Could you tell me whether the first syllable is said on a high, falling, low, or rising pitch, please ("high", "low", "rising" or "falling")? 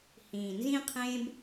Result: low